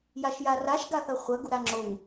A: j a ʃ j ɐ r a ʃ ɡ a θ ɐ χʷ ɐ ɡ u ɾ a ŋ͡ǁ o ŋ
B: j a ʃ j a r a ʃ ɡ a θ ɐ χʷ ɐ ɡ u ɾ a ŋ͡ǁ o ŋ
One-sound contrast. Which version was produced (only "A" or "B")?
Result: B